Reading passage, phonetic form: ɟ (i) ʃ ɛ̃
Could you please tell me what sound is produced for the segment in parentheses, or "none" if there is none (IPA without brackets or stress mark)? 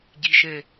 i